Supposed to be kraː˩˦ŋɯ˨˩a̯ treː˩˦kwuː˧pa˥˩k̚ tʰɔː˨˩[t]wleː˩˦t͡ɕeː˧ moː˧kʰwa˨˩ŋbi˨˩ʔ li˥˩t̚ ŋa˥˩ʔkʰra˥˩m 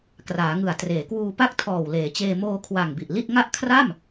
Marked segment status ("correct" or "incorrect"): incorrect